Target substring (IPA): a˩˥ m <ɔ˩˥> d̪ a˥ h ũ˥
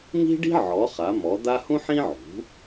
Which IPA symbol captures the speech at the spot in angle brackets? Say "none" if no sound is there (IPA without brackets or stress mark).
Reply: ɔ˩˥